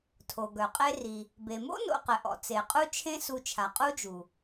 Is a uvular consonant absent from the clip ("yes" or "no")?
no